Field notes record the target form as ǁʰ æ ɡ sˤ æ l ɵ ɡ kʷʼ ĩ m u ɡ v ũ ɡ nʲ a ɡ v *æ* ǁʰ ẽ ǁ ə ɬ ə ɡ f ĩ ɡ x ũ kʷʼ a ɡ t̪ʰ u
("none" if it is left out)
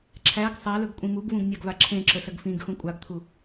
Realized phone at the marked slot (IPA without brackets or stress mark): a